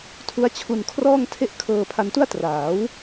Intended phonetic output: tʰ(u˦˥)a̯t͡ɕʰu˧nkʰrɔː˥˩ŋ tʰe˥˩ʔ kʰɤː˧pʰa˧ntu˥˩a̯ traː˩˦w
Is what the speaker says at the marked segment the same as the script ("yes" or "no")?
yes